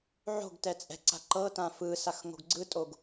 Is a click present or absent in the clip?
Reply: present